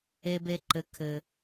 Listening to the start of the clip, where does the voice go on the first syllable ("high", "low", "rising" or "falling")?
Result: high